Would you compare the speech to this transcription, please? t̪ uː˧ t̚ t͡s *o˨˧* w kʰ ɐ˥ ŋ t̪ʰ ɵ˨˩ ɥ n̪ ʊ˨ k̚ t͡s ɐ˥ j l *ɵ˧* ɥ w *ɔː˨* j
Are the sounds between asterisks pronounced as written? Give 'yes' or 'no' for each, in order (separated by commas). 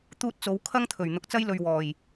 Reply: yes, yes, no